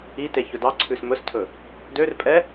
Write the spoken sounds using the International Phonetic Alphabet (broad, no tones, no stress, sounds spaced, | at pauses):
i t e ç ɵ d ɑ ǀʰ ʉ s m ɵ s tʰ ɵ | d ø r pʼ ɛ